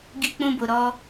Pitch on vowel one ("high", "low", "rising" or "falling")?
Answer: high